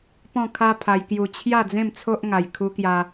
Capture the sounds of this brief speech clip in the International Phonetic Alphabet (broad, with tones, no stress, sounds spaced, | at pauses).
p ɔ̃˥˧ kʰ a˦ pʰ a˧ j k j u˧ t͡ɕʰ j a˥˧ d͡z ẽ˥˧ m t͡sʰ o˦ ʔ ŋ a˧ j kʰ u˧ k j a˧